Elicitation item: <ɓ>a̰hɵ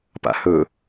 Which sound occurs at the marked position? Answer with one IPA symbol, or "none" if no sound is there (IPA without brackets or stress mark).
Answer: p